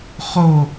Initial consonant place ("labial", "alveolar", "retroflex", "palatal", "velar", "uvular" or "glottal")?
uvular